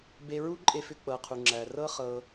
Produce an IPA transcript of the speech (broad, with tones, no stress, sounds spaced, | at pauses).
b e˧ ɹ u˦ ǃʼ e˧ f ʏ˧ k͡p ɤ˨ qʰ u˨ ŋ͡ǁ æ˨ r ɤ˦ χ ɤ˧